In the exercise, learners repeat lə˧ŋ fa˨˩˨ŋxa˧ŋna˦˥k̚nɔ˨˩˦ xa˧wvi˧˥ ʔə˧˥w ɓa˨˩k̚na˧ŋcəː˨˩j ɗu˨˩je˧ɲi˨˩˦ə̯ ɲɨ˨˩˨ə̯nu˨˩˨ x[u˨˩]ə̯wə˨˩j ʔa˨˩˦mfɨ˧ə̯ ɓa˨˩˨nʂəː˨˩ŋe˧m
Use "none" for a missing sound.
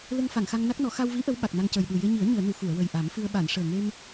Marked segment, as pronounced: u˨˩˨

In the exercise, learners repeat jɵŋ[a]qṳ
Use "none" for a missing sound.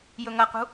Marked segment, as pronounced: ɐ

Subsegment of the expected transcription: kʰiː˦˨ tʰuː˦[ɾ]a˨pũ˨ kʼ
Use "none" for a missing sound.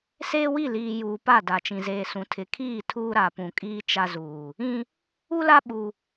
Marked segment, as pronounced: ɾ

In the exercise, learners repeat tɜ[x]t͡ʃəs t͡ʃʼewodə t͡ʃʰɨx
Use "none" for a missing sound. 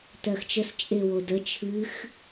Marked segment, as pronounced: x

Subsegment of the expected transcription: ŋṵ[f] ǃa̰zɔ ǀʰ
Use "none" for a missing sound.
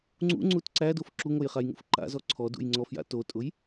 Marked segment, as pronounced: f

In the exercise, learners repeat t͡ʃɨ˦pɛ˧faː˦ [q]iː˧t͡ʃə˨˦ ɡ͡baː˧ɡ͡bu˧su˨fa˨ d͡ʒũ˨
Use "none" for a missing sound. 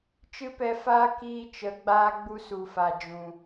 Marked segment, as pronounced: k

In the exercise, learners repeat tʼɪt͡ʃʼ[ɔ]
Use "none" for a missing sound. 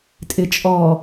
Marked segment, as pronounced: ɔ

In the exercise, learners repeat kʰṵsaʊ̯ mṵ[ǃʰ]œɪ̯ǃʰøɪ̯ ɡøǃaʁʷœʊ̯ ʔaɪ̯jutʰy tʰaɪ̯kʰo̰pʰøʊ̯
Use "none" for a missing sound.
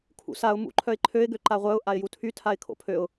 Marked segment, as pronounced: ǃʰ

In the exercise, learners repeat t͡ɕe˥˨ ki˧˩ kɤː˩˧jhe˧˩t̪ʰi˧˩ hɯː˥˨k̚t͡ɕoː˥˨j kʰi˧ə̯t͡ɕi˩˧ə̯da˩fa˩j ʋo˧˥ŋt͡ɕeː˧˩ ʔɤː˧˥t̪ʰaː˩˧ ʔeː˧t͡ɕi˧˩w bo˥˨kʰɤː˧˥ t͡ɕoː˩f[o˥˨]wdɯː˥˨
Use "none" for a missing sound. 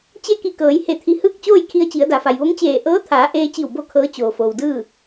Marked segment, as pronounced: o˩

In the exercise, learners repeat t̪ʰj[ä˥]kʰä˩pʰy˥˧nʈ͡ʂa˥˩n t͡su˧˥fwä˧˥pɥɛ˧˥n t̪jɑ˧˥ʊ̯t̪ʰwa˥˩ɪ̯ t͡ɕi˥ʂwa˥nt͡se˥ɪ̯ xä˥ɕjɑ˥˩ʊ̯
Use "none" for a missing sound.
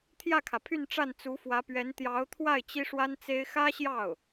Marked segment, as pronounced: ä˥˩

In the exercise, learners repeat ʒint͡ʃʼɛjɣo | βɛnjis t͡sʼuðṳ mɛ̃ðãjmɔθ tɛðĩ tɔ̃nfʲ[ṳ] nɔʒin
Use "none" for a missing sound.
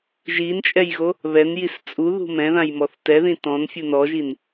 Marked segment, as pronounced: u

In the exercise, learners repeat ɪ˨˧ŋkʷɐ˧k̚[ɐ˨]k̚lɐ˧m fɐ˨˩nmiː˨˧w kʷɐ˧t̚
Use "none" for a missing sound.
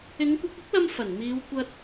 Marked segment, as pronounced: ɐ˥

